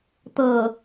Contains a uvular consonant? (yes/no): no